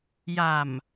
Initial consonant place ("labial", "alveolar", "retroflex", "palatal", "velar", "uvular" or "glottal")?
palatal